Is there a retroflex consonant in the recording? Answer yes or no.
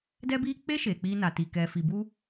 no